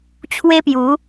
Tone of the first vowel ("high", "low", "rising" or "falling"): high